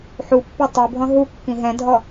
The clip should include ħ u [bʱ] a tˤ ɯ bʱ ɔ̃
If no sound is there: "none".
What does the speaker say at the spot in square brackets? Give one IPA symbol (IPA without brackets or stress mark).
pː